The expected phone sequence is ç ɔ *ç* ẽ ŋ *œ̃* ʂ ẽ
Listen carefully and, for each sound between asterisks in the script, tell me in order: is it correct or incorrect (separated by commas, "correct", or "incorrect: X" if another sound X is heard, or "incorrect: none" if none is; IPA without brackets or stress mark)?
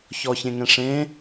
correct, incorrect: ɛ̃